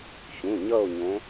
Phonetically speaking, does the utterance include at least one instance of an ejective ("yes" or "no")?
no